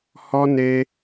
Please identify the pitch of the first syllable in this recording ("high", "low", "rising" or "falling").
high